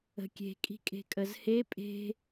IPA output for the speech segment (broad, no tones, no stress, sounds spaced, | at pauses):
ə̤ kʲ e̤ kʼ i̤ kʼ e̤ kʼ ə z h e pʼ e̤